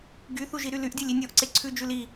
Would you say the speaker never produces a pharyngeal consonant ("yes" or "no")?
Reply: yes